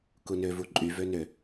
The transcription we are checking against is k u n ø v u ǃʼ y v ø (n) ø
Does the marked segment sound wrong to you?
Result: no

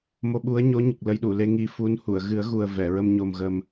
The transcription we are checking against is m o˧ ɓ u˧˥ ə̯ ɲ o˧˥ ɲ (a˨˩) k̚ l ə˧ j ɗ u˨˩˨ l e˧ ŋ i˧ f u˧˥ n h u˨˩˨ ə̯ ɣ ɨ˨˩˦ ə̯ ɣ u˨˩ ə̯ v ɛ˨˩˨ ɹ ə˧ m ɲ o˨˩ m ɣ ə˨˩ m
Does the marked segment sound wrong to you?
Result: yes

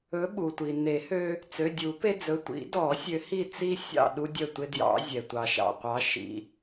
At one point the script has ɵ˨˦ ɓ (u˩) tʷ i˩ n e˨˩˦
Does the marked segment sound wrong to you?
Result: no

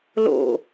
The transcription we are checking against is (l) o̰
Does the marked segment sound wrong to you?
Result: no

